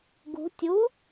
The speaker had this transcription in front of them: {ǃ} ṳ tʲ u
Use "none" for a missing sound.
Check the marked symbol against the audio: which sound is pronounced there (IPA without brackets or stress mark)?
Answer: ɡ